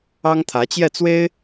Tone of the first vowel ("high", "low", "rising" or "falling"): high